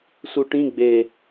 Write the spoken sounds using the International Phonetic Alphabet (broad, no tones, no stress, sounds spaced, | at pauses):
s u ʈ ĩ ɡ͡b e